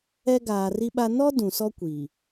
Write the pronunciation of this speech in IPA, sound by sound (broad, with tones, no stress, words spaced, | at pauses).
ɛ˦ɡaː˨ri˦ɓa˦ nɔ˦ dũ˨sɔ˦ kʷiː˨